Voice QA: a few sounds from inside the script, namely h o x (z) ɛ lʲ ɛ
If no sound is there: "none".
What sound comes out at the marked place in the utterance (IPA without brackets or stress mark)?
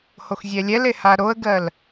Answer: zʲ